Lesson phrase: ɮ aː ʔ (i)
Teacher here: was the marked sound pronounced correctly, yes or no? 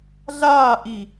yes